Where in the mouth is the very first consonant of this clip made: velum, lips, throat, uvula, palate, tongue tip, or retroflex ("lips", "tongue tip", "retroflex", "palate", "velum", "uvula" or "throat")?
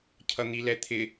palate